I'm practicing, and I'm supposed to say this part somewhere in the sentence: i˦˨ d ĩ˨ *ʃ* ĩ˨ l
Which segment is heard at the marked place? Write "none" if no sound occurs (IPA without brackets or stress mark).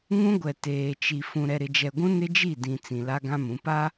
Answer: t͡s